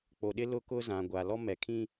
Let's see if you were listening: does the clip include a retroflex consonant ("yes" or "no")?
no